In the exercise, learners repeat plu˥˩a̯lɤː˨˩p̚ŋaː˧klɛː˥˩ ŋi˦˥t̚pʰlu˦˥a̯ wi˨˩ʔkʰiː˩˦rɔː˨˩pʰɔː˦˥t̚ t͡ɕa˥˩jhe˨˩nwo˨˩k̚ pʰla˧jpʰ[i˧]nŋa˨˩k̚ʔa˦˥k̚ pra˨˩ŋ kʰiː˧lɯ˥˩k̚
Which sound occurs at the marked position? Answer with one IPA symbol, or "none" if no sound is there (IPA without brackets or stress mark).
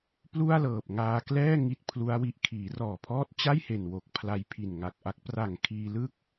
i˨˩